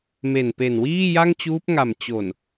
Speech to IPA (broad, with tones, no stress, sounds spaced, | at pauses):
m e˨˩ n p e˨˩ n w iː˥˩ j a˥˩ ŋ t͡ɕ uː˦˥ p̚ ŋ a˨˩ m t͡ɕ o˨˩ n